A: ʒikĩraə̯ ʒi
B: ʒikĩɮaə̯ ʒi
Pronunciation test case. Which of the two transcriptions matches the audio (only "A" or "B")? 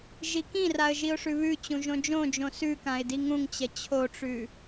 A